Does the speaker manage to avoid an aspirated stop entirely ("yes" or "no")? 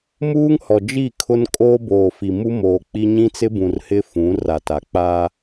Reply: no